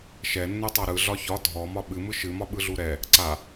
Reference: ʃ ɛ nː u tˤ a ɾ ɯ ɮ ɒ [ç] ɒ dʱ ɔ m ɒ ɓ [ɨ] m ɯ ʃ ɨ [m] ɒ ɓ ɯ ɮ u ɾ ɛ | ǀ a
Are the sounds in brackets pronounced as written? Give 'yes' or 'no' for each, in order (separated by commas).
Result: yes, yes, yes